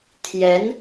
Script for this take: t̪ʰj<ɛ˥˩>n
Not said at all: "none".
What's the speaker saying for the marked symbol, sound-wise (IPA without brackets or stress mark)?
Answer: ɛ˧˥